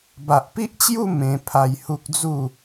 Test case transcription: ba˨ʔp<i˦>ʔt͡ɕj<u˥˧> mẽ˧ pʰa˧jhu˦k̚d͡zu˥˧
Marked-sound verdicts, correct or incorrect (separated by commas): correct, correct